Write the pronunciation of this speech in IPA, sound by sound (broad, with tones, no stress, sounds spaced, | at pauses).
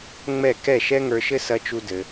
ŋ͡m ɛ˦˨ k ɛ˦˨ ʃ ɛ˦ ŋ ə˞˧ ʃ ɘ˦ s ɐ˦ t͡ʃ u˦ d ɘ˧